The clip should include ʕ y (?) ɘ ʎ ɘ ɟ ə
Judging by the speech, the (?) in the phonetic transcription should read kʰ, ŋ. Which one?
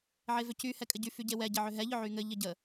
ŋ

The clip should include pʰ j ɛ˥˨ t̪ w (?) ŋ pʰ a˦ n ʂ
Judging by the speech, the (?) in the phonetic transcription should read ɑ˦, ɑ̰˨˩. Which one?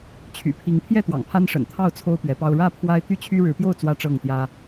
ɑ̰˨˩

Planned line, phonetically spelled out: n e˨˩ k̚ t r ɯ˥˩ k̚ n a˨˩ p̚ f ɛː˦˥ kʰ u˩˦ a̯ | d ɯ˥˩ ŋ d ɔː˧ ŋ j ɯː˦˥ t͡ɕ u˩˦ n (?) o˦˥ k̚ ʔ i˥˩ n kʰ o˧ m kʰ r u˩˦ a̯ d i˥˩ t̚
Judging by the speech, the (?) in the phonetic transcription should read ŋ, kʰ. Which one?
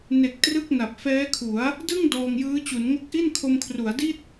ŋ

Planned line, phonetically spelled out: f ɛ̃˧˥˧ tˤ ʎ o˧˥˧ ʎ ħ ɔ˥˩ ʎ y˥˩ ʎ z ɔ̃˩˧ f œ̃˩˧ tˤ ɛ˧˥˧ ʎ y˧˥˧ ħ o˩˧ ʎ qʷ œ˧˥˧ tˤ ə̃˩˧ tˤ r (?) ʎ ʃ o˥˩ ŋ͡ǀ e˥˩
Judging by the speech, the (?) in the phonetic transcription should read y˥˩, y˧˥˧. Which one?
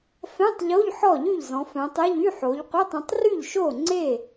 y˥˩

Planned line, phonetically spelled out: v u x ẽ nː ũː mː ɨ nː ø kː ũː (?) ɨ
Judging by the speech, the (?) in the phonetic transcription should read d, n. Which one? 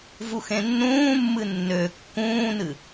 n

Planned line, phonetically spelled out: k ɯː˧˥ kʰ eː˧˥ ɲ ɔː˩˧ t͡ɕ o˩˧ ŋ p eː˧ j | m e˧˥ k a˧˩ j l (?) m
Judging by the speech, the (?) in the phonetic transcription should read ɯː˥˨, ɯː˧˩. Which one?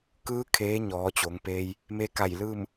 ɯː˥˨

